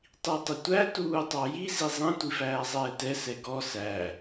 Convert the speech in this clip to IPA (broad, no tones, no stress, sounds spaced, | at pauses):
tˤ i tˤ ɪ tʷ æ t uː tˤ ɑ j i z i zˤ ĩ tʷ i f æː zˤ ɛː t ɛ s ɛ ɡ ɔ s æ